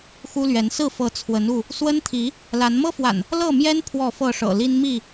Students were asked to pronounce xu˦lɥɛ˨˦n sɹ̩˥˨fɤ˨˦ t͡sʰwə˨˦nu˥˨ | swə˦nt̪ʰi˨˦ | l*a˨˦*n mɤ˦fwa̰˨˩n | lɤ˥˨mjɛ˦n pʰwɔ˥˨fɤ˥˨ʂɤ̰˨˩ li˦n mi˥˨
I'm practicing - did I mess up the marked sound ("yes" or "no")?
no